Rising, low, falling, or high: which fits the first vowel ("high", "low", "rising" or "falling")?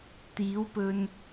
rising